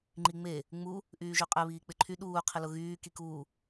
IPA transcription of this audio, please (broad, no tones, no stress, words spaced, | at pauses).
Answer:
ŋ͡ǃiŋ͡me | ŋ͡mu | ʔyːʒyqʼɛ βiːk͡pɪǃʰy ɗuː qʰɪlʊɣyː kikuː